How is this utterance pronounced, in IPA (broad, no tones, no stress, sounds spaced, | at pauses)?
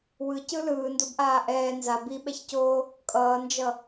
w ɯ c ɯ l ɯː n d o b ʔ aː ʔ ɛː n z a b i ɓ ɛ ç c oː | kʼ ʌː n d͡ʒ ʌ